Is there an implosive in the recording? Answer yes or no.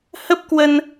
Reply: no